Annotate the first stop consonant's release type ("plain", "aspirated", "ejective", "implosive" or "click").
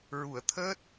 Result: aspirated